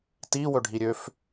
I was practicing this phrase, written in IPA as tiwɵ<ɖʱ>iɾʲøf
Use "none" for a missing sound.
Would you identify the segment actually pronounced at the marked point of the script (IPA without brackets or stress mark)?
ɖʱ